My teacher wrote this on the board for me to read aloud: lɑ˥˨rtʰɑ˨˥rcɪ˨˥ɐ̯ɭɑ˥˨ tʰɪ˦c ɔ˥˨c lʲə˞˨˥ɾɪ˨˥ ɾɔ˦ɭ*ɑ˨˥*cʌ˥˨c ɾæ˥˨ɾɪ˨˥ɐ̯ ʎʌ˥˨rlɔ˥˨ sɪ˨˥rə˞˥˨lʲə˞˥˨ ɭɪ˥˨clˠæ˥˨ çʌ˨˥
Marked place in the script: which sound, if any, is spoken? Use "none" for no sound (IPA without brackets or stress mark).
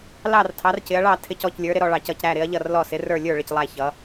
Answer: ɑ˨˥